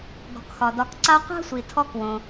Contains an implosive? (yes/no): no